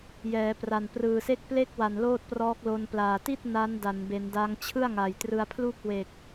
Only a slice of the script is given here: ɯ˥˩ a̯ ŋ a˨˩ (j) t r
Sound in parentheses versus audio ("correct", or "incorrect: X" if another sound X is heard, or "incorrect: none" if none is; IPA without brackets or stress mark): correct